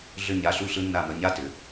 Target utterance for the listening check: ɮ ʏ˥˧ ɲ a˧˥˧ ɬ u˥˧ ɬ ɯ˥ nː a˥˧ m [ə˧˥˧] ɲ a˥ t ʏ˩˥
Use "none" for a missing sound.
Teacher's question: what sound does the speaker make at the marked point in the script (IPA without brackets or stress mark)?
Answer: ə˧˥˧